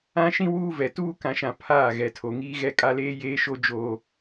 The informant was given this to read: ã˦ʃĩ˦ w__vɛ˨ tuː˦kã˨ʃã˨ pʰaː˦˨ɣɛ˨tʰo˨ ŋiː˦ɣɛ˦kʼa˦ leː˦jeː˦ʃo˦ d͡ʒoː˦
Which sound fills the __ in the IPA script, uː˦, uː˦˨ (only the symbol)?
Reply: uː˦